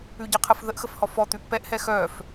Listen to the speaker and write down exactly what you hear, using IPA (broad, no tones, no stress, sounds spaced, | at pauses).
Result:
ʉ ɟ ə qʰ ə f ð ə ʔ x ə f h ɔ f ɔ t̪ ʉ ʔ p ɛ ʔ h ɛ x œ f